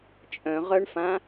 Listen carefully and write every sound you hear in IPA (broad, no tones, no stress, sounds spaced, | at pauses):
t͡ʃʼ œ̃ ʁ œ ɳ f ã